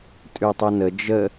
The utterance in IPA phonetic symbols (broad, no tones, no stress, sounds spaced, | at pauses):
tʼ ʉ tˤ u n ə d͡ʒ ə